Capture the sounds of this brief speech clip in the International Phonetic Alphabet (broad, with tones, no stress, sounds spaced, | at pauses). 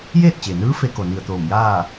j eː˥˨ t̚ t͡ɕ e˩ n ɯː˧˥ f e˧˥ k o˩ n i˧˩ ə̯ t̪ oː˧˩ m j aː˥˨